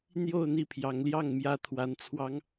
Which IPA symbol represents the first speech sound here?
n̪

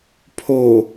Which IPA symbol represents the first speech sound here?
pʰ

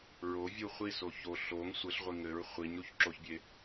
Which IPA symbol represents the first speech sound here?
ɹ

